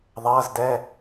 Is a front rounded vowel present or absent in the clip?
absent